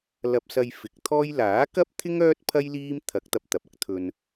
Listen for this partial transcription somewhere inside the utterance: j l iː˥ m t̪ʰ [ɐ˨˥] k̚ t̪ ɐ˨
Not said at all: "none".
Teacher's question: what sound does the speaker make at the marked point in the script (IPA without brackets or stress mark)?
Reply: ɐ˨˥